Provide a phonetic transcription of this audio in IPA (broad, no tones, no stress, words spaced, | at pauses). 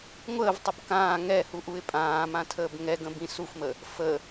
ŋʷəːvtˤəb kãː ŋɛhuʔuɪ̯ pʼãːmãtʰəːb ŋɛɡə̃bĩ sufmə | fə